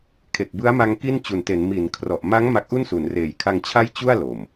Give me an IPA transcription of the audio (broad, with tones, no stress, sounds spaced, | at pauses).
kʰ e˨˩ k̚ b ɯ˦˥ a̯ m a˧ ŋ k i˥˩ n t͡ɕ u˨˩ n t e˩˦ n m i˩˦ n kʰ r ɔ˨˩ ʔ m a˦˥ ŋ m a˦˥ k̚ ʔ u˥˩ n s u˩˦ n r eː˩˦ j kʰ a˧ ŋ t͡ɕʰ a˦˥ j t͡ɕ u˥˩ a̯ l o˨˩ m